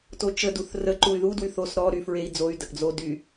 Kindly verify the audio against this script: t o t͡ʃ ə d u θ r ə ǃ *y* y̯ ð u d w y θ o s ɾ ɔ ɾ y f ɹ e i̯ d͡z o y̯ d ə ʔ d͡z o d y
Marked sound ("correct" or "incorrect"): incorrect